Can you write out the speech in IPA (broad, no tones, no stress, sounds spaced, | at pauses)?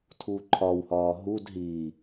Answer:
tʰ uː ǃʰ ɒ w h ɒː ɦ u d ɦ i